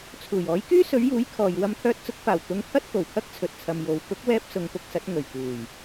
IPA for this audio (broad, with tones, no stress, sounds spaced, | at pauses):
t͡sʰ uː˨˩ j ɔː˨˥ j k yː˥ s ɵ˨˥ ɥ j uː˨˥ j kʰ ɔː˨ j w ɐ˧ m t̪ʰ œː˧ t̚ t͡s ʊ˨˥ k̚ f aː˨˩ w t̪ ʊ˧ ŋ pʰ ɐ˥ t̚ k o˨˩ w kʰ ɐ˥ k̚ t͡sʰ ɵ˨ t̚ t͡sʰ ɐ˨ m j o˨˧ w k ʊ˨˥ k̚ w ɛː˧ p̚ s ʊ˨˧ ŋ p ʊ˧ k̚ s ɐ˨˥ t̚ ŋ ɵ˨˩ ɥ k uː˨˩ j